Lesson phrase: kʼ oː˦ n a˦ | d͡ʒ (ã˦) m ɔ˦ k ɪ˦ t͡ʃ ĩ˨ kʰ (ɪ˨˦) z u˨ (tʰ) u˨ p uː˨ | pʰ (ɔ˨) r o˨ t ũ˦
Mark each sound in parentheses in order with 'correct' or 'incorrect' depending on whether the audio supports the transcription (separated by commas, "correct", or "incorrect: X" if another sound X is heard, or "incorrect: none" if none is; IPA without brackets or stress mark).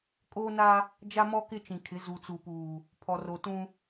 incorrect: a˦, correct, incorrect: t͡s, correct